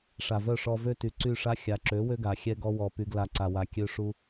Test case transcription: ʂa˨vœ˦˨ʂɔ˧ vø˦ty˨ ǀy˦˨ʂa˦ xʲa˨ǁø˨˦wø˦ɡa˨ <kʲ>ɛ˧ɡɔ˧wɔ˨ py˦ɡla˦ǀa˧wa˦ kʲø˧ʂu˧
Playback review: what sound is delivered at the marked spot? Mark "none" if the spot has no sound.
xʲ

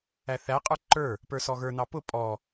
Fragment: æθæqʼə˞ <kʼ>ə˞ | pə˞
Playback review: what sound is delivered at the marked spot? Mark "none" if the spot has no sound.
ǃ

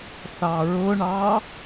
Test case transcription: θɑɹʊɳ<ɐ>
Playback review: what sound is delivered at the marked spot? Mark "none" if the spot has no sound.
ɑ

